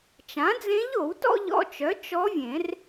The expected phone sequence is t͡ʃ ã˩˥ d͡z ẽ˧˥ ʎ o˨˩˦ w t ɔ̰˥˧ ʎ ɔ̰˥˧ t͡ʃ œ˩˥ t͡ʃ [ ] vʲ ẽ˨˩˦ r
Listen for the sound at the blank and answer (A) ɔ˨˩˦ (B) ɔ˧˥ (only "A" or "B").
B